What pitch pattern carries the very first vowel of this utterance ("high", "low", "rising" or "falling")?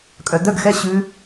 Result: low